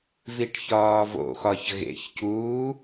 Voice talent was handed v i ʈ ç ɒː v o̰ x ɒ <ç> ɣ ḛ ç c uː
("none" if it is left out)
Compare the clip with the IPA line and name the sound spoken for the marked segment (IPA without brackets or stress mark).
ç